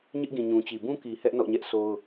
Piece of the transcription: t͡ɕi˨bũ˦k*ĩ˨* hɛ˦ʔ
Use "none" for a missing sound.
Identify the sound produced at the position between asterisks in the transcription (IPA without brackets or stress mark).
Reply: i˨